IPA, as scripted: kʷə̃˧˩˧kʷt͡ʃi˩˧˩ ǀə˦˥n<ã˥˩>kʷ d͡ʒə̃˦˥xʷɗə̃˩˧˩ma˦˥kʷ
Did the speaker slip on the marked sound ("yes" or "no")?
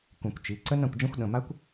no